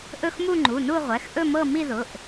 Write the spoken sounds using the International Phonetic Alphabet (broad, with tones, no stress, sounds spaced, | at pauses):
ʔ ɵ˥˧ x m u˥˧ ŋ͡ǃ u˩˧˩ n u˥˧ ʁʷ ɛ˩˧˩ x ʔ ɵ˥˧ m ɤ˥˧ m i˥˧ ð ʊ˩˧˩ ʔ